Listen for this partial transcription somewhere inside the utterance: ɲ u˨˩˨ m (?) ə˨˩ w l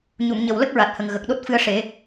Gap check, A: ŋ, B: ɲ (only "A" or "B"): B